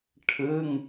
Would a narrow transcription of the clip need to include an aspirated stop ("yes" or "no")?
yes